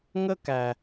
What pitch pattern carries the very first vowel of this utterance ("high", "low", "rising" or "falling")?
high